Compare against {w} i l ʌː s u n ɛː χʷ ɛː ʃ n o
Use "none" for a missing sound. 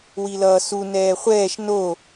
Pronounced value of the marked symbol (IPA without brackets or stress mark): w